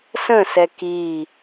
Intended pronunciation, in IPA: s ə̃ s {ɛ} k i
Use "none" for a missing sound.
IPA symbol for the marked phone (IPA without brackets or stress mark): ɛ